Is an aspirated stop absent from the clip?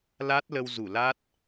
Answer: yes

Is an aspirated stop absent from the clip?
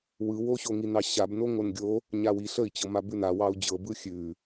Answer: yes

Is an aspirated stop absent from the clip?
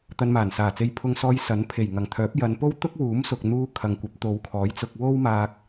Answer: no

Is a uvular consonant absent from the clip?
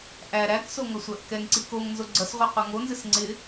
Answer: no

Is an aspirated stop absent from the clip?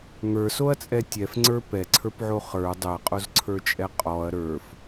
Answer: no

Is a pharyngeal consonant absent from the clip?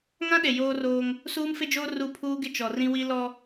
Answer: yes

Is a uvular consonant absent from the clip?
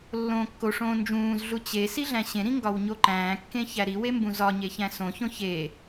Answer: yes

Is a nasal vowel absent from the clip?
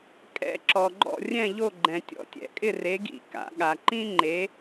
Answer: no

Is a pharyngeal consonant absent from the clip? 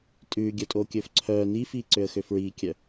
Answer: yes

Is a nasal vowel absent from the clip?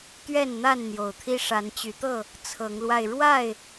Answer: yes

